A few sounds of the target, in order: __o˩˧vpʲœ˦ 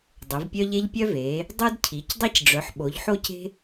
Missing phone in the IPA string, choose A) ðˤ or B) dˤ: B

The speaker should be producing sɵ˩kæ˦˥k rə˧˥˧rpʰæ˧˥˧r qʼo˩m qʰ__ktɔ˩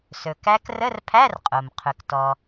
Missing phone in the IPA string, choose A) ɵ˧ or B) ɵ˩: B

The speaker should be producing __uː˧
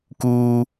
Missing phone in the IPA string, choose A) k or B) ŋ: A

